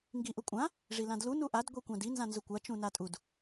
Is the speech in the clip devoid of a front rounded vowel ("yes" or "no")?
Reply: yes